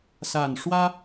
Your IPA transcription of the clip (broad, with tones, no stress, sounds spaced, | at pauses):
s a˨˩ n ʂ w ä˦